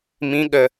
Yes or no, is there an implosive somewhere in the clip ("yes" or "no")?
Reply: yes